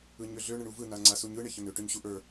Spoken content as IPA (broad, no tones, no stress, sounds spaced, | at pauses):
ɯ ɲ ø ɮ ø ɳ ə ɳ u v ɯ n a ŋ͡ǀ a s u ɲ ɯ ɳ e ç ə n ø ʈ ø ɲ ɕ u ʔ ə˞